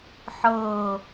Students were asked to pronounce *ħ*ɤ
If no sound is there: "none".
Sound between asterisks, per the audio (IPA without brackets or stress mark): ħ